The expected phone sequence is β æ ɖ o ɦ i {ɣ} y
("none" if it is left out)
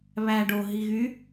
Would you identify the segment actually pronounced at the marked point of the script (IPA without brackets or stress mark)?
ɣ